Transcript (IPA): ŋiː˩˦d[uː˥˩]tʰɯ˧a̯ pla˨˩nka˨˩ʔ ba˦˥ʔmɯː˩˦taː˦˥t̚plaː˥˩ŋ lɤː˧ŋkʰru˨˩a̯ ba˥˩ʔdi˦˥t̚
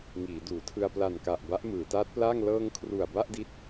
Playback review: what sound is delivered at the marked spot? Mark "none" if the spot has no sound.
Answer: uː˩˦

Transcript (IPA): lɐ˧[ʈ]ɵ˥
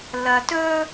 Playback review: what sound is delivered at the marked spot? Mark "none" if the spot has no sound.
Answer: t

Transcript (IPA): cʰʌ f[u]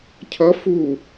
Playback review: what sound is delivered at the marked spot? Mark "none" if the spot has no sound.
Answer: u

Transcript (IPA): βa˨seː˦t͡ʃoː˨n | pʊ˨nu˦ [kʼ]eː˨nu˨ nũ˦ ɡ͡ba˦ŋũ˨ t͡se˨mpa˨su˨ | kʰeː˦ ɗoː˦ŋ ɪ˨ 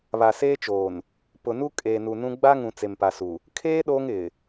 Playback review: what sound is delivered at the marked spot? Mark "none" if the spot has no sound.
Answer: kʼ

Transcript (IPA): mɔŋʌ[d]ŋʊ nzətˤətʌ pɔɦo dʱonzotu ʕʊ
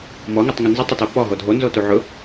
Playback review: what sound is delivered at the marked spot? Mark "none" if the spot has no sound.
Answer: tˤ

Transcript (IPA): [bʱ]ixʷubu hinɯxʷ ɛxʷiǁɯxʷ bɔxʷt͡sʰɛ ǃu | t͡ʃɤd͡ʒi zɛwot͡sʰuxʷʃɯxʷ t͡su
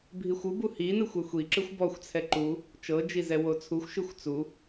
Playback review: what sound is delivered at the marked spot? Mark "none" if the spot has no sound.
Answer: bʱ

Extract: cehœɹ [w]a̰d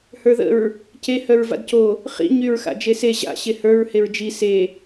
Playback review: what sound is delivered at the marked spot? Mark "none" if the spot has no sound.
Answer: v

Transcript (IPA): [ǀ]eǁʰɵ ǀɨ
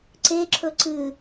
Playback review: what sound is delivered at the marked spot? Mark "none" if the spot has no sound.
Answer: ǀ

